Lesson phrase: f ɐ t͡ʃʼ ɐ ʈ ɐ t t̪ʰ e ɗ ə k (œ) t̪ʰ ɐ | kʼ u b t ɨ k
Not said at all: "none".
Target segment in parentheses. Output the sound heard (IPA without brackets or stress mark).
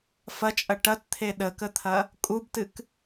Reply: ə